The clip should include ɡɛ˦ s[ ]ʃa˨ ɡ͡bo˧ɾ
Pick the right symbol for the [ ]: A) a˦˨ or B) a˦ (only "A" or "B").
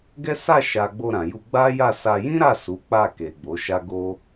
A